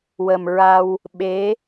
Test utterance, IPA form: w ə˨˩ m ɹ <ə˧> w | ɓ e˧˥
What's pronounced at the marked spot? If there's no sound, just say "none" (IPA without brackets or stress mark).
a˧